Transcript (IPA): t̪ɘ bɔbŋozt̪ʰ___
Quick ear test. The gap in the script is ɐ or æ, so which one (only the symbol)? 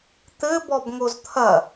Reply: ɐ